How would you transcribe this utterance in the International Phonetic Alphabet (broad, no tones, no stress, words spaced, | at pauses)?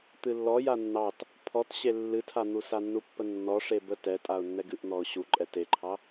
t̪ɨlːɔ janːɑt | pʰɔt ɕelːɨtʰan̪u sanːupːənːɔ ʂebə tɛtʼaʊ̯ nːɛɡɨʔn̪ɔʊ̯ ɕuǃʼɛ teǃʰɑ